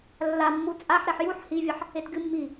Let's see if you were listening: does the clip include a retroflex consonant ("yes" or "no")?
no